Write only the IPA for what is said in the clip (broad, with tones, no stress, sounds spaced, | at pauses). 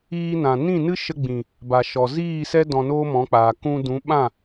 iː˧ n ã˨ n ĩ˦˨ n ɨ˦ ʃ ə˧ ɡ͡b ĩ˨ | b a˨ ʃ ɔ˨ z iː˦˨ s ɛ˦ d ɔ̃˧ n oː˦ m ɔ̃˨˦ k͡p aː˨ k ũ˧ d ũ˨˦ ɓ ã˦˨